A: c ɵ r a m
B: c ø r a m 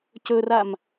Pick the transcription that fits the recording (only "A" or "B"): A